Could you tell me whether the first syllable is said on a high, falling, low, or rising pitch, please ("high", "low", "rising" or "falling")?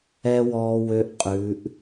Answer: high